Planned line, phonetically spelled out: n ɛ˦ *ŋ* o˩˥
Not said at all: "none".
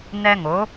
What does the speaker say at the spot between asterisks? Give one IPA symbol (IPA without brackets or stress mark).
ŋ